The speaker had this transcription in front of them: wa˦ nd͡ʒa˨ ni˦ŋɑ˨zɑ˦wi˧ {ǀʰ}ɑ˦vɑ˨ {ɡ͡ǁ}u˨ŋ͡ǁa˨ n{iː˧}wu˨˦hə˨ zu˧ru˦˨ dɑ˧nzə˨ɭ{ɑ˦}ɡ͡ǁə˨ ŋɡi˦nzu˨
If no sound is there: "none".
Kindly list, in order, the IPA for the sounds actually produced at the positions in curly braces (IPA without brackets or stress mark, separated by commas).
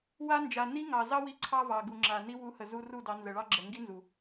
ǀʰ, ɡ, i˧, ɑ˦